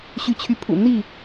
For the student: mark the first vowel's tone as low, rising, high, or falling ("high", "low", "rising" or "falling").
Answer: rising